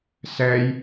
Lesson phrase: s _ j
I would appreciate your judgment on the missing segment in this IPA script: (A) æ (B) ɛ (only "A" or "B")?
B